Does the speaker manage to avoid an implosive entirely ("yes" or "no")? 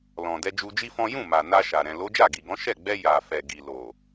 yes